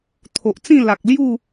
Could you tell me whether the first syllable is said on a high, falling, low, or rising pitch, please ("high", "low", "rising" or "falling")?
low